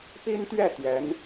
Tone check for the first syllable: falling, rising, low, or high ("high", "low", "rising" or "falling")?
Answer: high